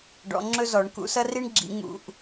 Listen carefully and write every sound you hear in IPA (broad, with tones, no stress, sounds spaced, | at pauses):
ɖ ɔ̰˨˩˦ ŋ͡ǁ ɵ˥ z ɔ˨˩˦ ɳ k ṵ˨˩˦ s ɐ˥ r i˥ ɳ ɡ͡ǁ ḭ˨˩˦ ŋ ṵ˨˩˦ ʔ